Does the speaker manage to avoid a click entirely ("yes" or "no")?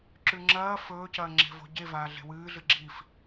no